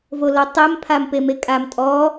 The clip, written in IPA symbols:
v o l ɔ tˤ ɛ m pʰ a m p e m e kʼ a m tʼ ɔ

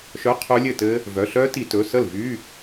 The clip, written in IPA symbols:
ʃ œ˧˥˧ qʰ ɵ˦˥ lʲ ɘ˥˩ t ɘ˦˥ | v œ˩˧˩ ɬ œ˦˥ t i˧˩˧ t ɵ˩˧˩ s ə˥˩ l v y˧˥˧

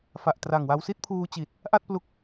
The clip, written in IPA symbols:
f a˨˩ ʔ t r a˨˩ ŋ w a˧ w s i˥˩ t̚ pʰ uː˧ t͡ɕ i˨˩ t̚ | ʔ a˥˩ t̚ p l u˦˥ k̚

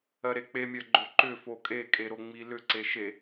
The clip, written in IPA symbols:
ɜ ɾ e k͡p e mʲ ɜ ɡ͡ǃ o ǃ ʏ f o kʼ e kʼ e ɾ o ŋ͡m i l ʏ ǀ e ʃ e

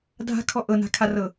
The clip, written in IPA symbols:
dʱ a̤ kʰ ɔ ʔ ɤ n a̤ kʰ a r ɤ

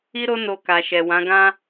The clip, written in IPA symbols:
i˦ ɾ o˦ n o˧ k a˨ ʃ ɛ˨ w ã˨˦ ɡ ã˦

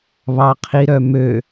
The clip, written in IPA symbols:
β ɑ qʰ i ɾ œ m ø

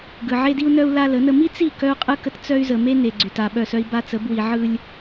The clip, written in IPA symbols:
ɡ ɯ˨ ʕ e˦ d i˦ u̯ n œ˦ u̯ l a˦ l ə˨˦ n ə˦ m i˦ t͡s i˦˨ k œ˦ u̯ qʼ ɯ˦ k ə˦ t t͡s œ˦ y̯ z ə˨ m e˦ n e˨ ɡ͡ǀ y˨ t a˨ ɓ œ˦˨ s œ˦ i̯ b a˦ t͡s ə˨˦ b w i˨ ʕ ɯ˦ lʲ

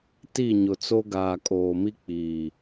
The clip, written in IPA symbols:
t i˦˨ ɲ ʊ˨ t͡s o˦ ɡ aː˨ kʼ oː˨ m i˦ k͡p iː˨

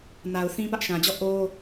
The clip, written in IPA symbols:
n a˨ ʊ̯ θ ĩ˦ p ä˦ ʔ ʃ ã˨ d͡ʑ ɔ˦˨ ʔ o˦

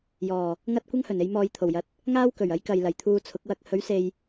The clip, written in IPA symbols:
j ɔː˨˩ | ŋ ɐ˧ t̚ kʷ ɐ˥ ŋ h ɵ˨˩ n e˧ j m ɔː˧ j t̪ʰ o˨˩ w j ɐ˨˥ t̚ | ŋ aː˥ w k ɵ˨˩ ɥ ɐ˨˥ j k ɐ˨ j l ɐ˨˩ j t̪ʰ uː˧ t͡sʰ ʊ˨˥ k̚ w ɐ˧ k̚ h ɵ˨˥ ɥ s e˨ j

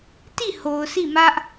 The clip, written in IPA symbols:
t i˦˨ h o˨ ʊ̯ s i˦˨ m ä˦ ʔ

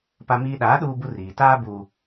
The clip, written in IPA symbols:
p a˦ m iː˦ ɗ aː˨˦ ɗ uː˦ b u˦ r iː˨ t aː˦ b uː˨

